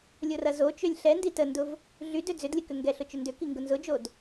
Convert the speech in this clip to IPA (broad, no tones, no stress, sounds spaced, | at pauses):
lʲ o r ɐ z o t͡ʃ ø lʲ ɬ ɛ n d i t ə n d ʊ v | ɮ y d ø d͡z ʏ d lʲ ə k ʏ ŋ ɡ ɛ ɬ ʊ t͡ʃ ʏ n d ʏ k i ŋ ɡ ʊ n z ʊ d͡ʒ o d